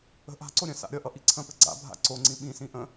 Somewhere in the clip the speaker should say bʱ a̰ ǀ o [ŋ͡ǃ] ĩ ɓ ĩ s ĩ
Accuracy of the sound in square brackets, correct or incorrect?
incorrect